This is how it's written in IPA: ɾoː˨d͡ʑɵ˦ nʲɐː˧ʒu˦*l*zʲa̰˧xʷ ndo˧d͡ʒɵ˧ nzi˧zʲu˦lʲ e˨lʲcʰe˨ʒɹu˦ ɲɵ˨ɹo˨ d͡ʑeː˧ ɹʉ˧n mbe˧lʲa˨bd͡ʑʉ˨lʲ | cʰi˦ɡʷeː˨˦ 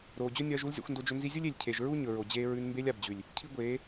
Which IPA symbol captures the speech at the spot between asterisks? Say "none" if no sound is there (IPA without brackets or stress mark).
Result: l